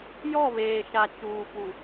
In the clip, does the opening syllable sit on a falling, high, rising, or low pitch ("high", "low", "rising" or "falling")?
falling